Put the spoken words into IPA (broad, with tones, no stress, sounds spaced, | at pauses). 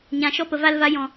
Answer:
ɲ ã˨ ʃ ɔ˧ p ə˨ v a˧ l v a˧ j ɔ̃˨